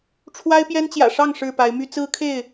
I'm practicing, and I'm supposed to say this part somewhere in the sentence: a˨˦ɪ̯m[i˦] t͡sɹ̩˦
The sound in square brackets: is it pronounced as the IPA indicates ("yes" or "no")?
no